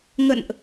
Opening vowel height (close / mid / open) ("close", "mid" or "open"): mid